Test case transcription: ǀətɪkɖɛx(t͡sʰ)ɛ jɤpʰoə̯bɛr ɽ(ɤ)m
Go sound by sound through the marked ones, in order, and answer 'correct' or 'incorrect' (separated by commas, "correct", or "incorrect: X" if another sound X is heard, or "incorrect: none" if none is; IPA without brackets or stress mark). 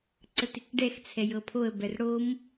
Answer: correct, incorrect: o